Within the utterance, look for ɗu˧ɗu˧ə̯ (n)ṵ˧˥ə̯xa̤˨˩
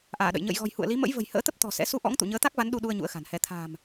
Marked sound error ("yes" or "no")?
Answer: yes